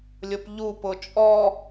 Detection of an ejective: present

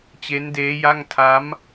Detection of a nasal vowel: absent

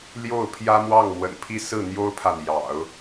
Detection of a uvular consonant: absent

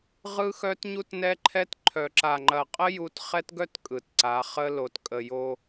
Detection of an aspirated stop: present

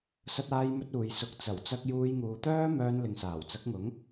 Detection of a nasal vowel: absent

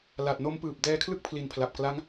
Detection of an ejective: absent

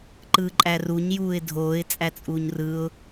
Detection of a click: present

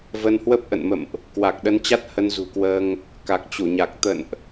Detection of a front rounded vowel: absent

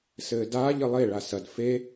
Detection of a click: absent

